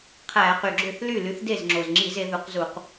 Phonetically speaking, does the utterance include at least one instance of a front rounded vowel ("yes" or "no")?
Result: yes